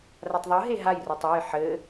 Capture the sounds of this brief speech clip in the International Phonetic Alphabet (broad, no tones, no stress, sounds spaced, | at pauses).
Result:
r a tˤ ðˤ ɯ ɦ e ɦ a j r ɔ tˤ ɯ j ħ ɘ